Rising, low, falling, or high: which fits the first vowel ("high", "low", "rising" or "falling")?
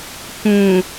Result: low